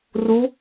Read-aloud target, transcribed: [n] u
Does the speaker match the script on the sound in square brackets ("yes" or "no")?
no